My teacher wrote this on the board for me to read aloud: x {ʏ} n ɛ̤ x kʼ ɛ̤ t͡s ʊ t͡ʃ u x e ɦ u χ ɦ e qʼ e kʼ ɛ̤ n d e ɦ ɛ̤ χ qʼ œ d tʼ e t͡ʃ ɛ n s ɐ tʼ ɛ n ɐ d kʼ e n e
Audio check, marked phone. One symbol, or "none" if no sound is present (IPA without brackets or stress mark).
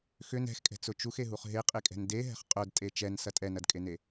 ʏ